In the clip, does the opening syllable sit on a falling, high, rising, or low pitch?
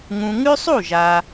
low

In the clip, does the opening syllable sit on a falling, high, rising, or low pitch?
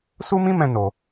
high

